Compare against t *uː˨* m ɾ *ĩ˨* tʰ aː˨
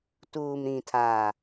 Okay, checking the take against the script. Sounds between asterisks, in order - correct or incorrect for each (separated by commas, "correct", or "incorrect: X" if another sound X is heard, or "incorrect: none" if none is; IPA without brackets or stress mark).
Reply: correct, correct